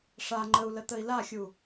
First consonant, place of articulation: retroflex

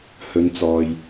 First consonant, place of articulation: glottal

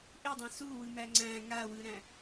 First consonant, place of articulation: glottal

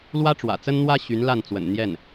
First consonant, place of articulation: alveolar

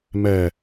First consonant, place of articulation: labial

